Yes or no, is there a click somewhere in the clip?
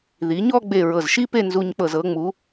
no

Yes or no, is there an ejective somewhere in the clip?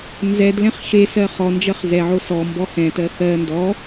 no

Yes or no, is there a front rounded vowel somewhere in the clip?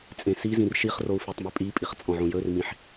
no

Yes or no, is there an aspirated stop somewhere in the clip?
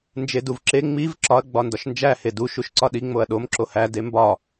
no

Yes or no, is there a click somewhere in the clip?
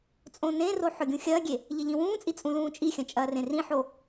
no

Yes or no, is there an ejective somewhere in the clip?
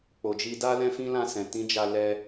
no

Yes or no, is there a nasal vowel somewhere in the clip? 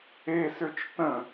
yes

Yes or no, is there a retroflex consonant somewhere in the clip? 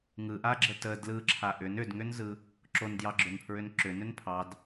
no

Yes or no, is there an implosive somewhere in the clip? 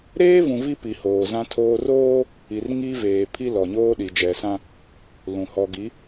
yes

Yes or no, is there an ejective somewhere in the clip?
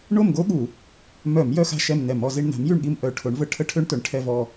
no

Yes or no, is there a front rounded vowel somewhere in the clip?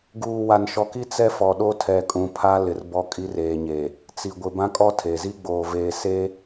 no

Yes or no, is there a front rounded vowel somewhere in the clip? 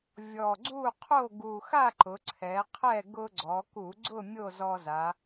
no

